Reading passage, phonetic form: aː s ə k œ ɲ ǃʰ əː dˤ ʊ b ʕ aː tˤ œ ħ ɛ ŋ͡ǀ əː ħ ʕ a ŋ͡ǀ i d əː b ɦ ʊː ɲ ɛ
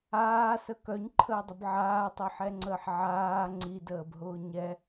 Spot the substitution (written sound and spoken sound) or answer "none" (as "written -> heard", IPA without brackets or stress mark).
a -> aː